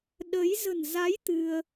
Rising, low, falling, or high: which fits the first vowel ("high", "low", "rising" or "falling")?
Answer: rising